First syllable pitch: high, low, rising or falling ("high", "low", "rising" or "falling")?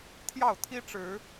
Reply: falling